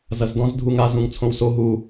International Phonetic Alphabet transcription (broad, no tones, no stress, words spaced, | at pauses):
zɐzdɔ̃z dʱuŋa zũŋt͡sʰõwso ɦu